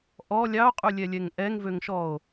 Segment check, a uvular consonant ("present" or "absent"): present